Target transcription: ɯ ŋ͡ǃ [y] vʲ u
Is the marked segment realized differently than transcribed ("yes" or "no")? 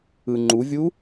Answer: yes